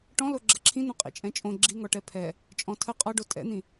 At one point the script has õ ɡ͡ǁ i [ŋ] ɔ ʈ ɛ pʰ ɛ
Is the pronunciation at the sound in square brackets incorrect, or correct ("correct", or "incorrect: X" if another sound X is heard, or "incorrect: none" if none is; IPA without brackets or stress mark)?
correct